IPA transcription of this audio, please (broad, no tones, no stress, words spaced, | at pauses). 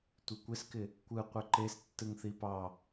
tʷɪkʷɪskɪ | kʷɯ qʷɘǃes tːɯŋθipɑ